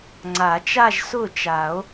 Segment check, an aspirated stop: absent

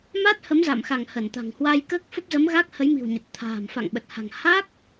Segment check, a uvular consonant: absent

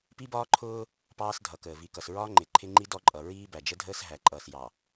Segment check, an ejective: present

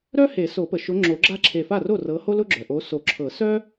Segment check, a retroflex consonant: absent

